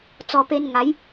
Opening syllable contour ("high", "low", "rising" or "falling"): low